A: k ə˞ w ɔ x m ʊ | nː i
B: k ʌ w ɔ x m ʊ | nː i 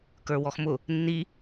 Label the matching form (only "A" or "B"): A